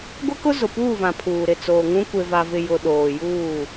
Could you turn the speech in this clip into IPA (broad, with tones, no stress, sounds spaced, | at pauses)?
ɡʷ ɪ˦ k ʊ˦ z ʊ˨ p uː˦˨ v ã˨ pʰ uː˨ ɾ ɪ˨ t͡s oː˨ ŋ ũ˦ kʷ e˨ v a˨ v ɪ˨ j ʊ˨ ɗ oː˨ j uː˦˨